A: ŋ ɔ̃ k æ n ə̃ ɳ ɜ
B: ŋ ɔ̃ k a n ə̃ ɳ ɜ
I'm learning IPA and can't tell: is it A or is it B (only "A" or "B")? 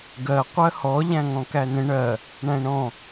A